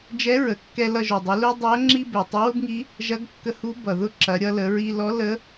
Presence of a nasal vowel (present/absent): absent